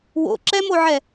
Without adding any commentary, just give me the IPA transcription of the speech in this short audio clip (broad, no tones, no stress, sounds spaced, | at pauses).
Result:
w o̰ ǁ ɛ m o ʕ ɛ